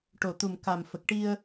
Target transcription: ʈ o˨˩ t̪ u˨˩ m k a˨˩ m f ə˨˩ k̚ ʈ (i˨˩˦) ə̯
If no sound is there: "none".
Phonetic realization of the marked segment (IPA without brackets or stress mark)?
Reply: i˧